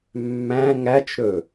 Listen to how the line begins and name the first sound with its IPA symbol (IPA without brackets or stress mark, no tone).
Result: mː